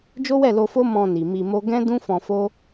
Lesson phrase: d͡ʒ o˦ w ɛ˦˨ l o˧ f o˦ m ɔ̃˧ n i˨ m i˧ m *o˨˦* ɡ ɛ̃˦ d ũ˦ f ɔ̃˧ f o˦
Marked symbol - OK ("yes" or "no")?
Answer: no